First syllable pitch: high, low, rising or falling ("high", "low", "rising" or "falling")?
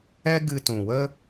high